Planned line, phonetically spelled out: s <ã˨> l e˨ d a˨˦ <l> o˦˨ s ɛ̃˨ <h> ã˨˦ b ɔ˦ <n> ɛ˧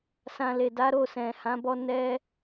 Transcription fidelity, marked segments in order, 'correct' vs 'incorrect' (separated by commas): correct, incorrect, correct, correct